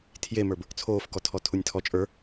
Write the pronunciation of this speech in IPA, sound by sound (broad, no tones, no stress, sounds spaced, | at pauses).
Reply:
tʰ j e m ə˞ b | t͡sʰ oː f k ɔ tʰ ɔ tʰ u nʲ tʰ ɔ t͡ʃʼ ə˞